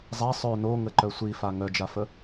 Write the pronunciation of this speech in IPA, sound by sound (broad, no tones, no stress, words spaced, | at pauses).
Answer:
zˤa sˤœ noŋəǃœ sʷifa ŋœd͡ʒafə